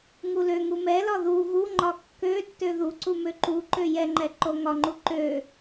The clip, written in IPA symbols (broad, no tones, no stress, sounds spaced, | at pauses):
ŋ u l ø ŋ u m ɛ l ɒ ð u ɣ u ŋ͡ǃ ɒ kː ø tː ø ð u ǀ u m ø ǃ u ǃ ø j ɛ ŋ͡ǃ ɛ ǃ o ŋ ɒ ŋ͡ǃ u ǃ ø